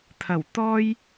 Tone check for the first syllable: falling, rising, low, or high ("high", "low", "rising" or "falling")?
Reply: low